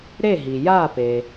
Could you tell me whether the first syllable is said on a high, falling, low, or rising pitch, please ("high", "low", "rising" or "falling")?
falling